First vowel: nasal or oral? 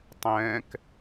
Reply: nasal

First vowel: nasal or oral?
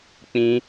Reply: nasal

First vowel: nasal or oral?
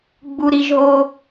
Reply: oral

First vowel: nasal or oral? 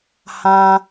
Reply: nasal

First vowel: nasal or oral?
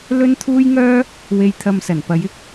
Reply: oral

